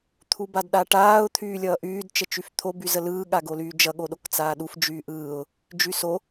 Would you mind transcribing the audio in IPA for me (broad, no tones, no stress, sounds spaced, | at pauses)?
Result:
t̪ʰ u b a d ɗ a ʈ aː ʊ̯ t̪ʰ yː lʲ ʌː ʔ yː d t͡ʃ ə t͡ʃ y f t̪ʰ o b y z ə l ɯː ɠ a ɡ o l yː d͡ʒ ʌ ɠ o ɗ o k t͡s aː ɗ u f d͡ʒ yː ʔ ɯː ʊ̯ | d͡ʒ y s o